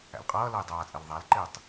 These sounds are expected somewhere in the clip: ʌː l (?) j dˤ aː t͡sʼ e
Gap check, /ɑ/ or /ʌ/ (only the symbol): ʌ